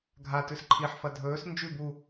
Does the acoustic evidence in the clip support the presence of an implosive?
no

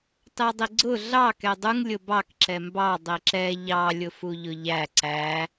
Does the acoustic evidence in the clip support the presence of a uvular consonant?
no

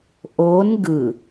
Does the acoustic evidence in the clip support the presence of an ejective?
no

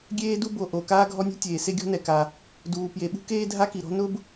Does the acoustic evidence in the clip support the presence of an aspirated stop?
no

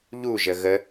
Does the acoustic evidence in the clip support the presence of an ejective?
no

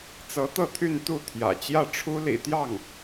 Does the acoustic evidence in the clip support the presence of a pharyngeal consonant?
no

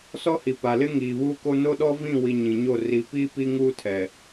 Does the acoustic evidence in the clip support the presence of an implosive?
yes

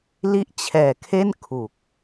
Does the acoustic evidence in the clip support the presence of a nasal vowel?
no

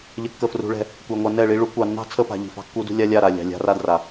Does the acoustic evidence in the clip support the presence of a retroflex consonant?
yes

